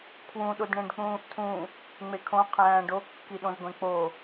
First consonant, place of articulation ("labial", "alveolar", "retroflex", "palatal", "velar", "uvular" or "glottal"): velar